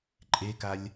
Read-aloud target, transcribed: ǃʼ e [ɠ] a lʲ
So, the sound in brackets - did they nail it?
no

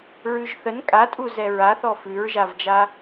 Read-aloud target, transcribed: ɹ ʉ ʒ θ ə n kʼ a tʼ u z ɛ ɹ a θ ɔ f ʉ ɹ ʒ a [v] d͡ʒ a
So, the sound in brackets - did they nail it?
yes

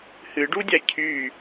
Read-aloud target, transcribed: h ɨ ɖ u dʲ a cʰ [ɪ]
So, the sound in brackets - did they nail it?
no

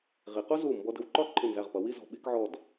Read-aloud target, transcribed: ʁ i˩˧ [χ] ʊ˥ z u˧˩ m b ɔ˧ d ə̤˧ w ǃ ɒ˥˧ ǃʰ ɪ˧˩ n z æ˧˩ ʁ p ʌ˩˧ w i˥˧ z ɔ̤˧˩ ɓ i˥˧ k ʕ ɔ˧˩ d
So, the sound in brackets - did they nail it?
no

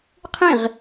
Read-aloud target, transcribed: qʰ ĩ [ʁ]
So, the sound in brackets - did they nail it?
yes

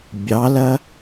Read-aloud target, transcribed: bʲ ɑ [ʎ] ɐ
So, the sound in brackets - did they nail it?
no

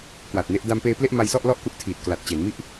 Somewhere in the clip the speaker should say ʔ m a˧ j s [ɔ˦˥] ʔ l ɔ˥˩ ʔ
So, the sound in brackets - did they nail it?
no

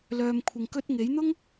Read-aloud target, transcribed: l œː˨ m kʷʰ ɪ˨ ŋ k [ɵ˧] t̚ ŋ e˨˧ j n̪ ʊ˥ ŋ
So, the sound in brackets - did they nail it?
yes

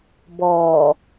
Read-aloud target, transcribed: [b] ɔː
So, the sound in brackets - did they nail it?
yes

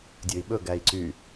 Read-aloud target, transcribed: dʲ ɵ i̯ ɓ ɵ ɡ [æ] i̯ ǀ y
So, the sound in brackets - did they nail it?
yes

